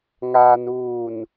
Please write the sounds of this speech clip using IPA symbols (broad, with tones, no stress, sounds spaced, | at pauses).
ŋ aː˨ n uː˨ n